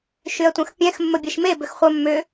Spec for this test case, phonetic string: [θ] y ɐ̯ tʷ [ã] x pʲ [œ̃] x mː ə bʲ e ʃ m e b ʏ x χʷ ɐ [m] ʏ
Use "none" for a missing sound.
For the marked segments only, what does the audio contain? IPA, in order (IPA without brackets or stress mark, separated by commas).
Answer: ʃ, ɐ̃, ɛ̃, mː